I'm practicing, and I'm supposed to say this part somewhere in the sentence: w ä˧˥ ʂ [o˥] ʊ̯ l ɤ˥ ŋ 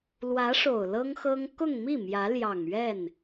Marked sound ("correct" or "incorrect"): incorrect